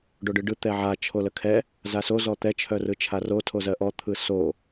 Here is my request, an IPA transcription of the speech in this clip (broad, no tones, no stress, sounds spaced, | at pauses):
ɖ o ɖ ɯ ɖ ɯ t̪ ɛ ʕ a t͡ʃʰ o l ə kʰ ɛ | z a s o z ɔ t̪ ɛ t͡ʃʰ œ r ɯ t͡ʃʰ a r o tʰ o z ɜ ʔ ɔ t̪ʰ ɯ s o